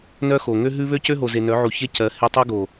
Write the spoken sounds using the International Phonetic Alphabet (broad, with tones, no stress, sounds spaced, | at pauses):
n œ˦ x o˨ ŋ ø˦ ɦ ʉ˦ β ø˦ c ø˦ ɦ o˨ z e˨ n œ˨˦ ʕ u˨ ç e˦ c ɜ˨˦ h e˦ tˤ o˦ ɡ o˨